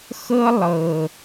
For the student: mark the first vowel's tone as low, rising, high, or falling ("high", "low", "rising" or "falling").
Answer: high